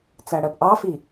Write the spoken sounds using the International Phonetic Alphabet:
t͡s æ ɽ ɜ p ʔ ɑ f i

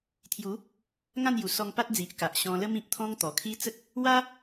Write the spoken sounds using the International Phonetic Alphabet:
t̪ʰ j u˨˦ | ŋ ã˥˧ n j u˨˩ s ɔ˧ ŋ p a˦ t̚ d͡z i˨ ʔ k a˨ ʔ ɕ ɔ̃˧ l ə˦ m ĩ˨ p̚ t̪ʰ ɔ̃˦ ŋ t̪ ɔ˨˩ kʰ i˦ t͡s ə˦ k̚ | w a˦

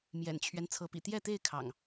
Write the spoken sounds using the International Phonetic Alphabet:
m j ɛ̰˨˩ n t͡ɕʰ ɥ ɛ˦ n t͡sʰ ɤ˨˦ p ḭ˨˩ t̪ j ɛ˥˨ t̪ e˥˨ ɪ̯ kʰ ɑ̰˨˩ ŋ

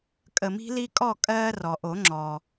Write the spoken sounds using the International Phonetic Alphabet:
kʼ ə˨˩˦ m i̤˨˦ l i˦ kʼ ɔ˥˨ kʼ ɜː˦ r ɔ˩ ʔ o˨˩˦ ŋ͡ǁ ɔ˩

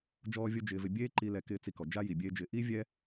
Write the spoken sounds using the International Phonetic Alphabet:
d͡ʒ ɔː˦ vʲ o˦ d͡ʒ ɪː˧ v ɪ˧ bʲ eː˦ ǃ i˧ l ɛ˧ k ɪː˦ t͡s i˧ k ɔ˨ d͡ʒ a˦ j i˨ bʲ eː˦ d͡ʒ ɪː˧ ʔ i˦ vʲ ɛ˦

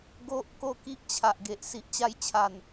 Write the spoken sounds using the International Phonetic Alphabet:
ɡ o˦ ʔ k o˥˧ k i˦ ʔ t͡ɕʰ a˨ ʔ ɡ e˨ ʔ s i˨ ʔ t͡ɕ a˧ j t͡ɕʰ a˨˩ n

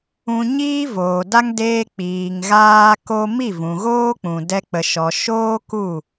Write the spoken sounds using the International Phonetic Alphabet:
ũ˧ ɲ iː˦ v oː˨ d a˦ ŋ d eː˧ k͡p iː˨ ŋ ɣ aː˦ k o˦ m i˦˨ v ũ˨ ɣ oː˦ k͡p ũ˨ d ɛ˧ k͡p ə˨ ʃ ɔ˨ ʃ oː˦ k u˦˨

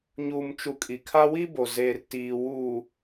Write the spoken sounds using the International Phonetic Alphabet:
ɲ uː˨ m t͡ʃ u˨ kʼ i˨ kʰ a˦ w i˦ b o˨ z eː˨ r t iː˨ w uː˨

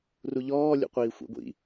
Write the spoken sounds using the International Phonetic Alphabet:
r u ʎ ɔː lʲ ṵ qʷ iː xʷ ḭ ɡʷ ḭ

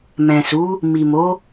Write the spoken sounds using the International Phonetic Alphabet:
m ɛ̃˨ s u˨˦ | m i˨ m o˨˦

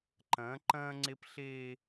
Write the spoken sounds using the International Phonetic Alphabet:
ǃ ɐ̃ː˨˦ ǃ ɐ̃ː˦ ŋ͡ǀ e˦ p ɬ eː˦

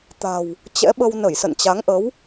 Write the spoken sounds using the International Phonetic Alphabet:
t̪ a̤˨˩ w | t͡ɕ ɛ̰˧˥ ɓ ə˧ w n ə˧˩ j s ə̰˧˨ n t͡ɕ a˨˦ ŋ ʔ ə˨˦ w

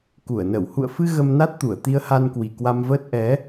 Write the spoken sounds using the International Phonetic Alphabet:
k u˧˩ ə̯ n ə˧˩ w h ṵ˧˨ ə̯ f ɨ˧ ɣ ə˧ m n a˦˥ t̚ t̪ u˧˩ ə̯ t̪ i˧ ə̯ h a˧ n k w i˨˩ k w a˧ m v əː˦˥ t̚ ʔ ɛ˨˦

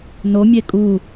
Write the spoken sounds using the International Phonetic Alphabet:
n o mʲ e kʼ u

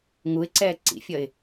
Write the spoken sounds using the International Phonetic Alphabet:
ŋ u ɪ̯ ǀ ɛː ǀ ḭ fʲ ʌ ɪ̯

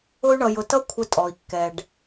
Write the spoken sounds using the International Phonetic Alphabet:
ʊ˦ y̯ ɳ ʌ˧ j ʊ˧ t ʌ˦ kʷʰ ə˧ tʼ ɔ˨ i̯ kː ɛ˧ ɖ

